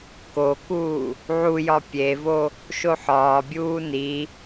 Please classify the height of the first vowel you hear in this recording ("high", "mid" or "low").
mid